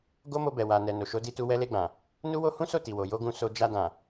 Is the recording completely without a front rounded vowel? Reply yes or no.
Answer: yes